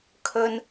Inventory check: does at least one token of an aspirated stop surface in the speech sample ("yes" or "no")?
yes